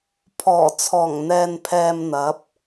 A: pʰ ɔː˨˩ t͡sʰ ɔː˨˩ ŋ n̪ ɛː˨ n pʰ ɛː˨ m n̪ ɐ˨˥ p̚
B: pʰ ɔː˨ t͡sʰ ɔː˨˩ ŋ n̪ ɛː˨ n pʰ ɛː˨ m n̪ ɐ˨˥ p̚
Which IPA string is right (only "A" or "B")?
A